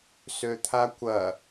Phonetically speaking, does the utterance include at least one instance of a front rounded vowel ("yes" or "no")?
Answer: yes